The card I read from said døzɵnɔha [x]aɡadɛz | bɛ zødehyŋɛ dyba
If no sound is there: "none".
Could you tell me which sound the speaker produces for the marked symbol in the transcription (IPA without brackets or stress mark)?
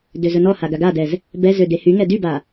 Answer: ɡ